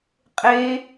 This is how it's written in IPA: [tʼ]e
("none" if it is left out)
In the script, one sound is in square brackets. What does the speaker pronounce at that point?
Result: qʼ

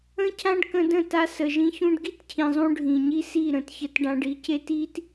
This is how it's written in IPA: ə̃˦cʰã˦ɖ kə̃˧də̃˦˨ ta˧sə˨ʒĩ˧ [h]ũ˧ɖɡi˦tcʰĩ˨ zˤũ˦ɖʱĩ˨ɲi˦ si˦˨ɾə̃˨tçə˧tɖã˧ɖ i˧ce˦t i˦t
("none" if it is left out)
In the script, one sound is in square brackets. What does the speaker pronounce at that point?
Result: ç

